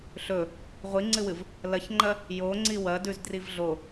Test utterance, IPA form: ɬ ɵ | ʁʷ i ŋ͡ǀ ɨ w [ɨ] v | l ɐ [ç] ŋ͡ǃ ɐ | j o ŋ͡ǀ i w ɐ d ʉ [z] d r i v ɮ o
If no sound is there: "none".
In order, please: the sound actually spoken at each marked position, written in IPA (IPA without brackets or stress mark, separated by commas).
ɨ, ç, z